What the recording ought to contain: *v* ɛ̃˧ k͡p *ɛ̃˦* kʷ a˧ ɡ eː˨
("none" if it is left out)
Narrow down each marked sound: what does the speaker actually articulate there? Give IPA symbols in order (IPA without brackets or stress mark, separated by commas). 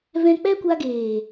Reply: v, ɛ˦